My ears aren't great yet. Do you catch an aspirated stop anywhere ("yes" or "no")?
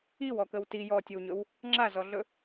no